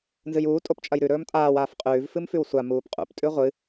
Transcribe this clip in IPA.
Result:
nzɨjuː tʼopt͡ʃʼɐjɾʉ ɾɵːmtʼaːw aːfqʼʉːv fɨmfʉwsʷa muːpqʼṵp tʼʉʁʷɨ

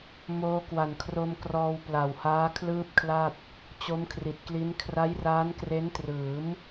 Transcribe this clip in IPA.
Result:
moː˧kwa˨˩nkʰro˧mkrɔː˧w pla˨˩whaː˦˥ kʰlɯː˥˩p̚kʰla˥˩t̚ | t͡ɕo˦˥mkʰri˨˩t̚kli˦˥n kʰra˦˥jraː˦˥nkre˦˥n trɯː˩˦m

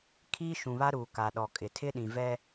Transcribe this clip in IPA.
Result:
kʰiː˦ʃũ˨βa˦ ɾuː˨ ka˨ɗɔ˨kʼɪ˨ tʰɪ˦ɗĩ˨vɛ˦

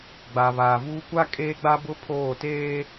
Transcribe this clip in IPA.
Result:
ɡ͡ba˨βaː˨vuː˦ kʷa˦kʼeː˦ɡ͡ba˦bʊ˦ pʰoː˦˨ teː˦

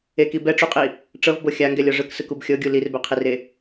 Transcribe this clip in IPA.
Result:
eki bɛʈ͡ʂuqʼi | ʈ͡ʂɤvbɤ xʲaŋɡɛlʲɔ ʐɯksɯkub xʲɤɡʲu lirbɛqʰire

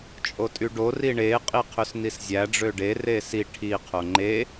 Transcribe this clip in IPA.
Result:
t͡ʃʼotʼyɖo riɳe qʼiqʰøsniszʲæ ɖ͡ʐøɖe resi ʈʰi qʰoŋ͡ǃe

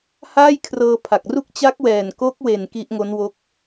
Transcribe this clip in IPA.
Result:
haː˥˩jkʰrɤː˧pʰa˨˩k̚ru˥˩k̚ t͡ɕa˦˥k̚wɛː˨˩nko˦˥k̚we˨˩n ki˦˥ʔŋo˦˥nwo˦˥k̚

